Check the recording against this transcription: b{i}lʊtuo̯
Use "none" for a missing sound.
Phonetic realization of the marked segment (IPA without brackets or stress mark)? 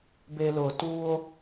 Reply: e